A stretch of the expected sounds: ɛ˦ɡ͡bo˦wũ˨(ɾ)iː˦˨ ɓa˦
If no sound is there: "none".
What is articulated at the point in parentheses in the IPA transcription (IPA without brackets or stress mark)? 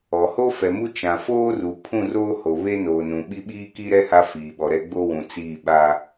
t͡s